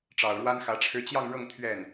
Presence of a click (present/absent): absent